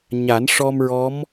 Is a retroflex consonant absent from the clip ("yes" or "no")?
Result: no